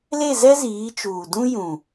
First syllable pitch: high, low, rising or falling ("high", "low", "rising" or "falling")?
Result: falling